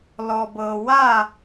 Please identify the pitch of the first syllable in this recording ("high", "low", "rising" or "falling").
low